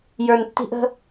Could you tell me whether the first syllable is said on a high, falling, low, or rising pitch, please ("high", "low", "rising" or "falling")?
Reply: low